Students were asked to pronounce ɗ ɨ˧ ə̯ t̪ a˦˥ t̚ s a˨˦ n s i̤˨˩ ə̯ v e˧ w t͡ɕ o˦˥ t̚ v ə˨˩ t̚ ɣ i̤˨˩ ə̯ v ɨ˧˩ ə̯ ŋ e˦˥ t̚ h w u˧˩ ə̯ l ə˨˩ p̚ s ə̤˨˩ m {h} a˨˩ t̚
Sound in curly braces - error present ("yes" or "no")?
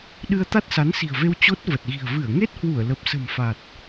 yes